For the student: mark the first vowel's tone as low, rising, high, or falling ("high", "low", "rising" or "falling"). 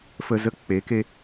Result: high